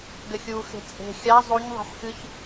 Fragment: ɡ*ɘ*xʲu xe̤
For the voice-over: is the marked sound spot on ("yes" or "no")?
yes